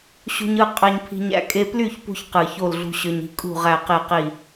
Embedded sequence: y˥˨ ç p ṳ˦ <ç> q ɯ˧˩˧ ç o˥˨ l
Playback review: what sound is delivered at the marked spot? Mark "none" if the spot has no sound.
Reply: ç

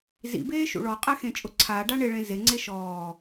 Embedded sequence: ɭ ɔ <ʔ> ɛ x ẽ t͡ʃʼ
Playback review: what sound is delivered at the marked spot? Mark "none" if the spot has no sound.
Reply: qʼ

